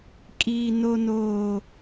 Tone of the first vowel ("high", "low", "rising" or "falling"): high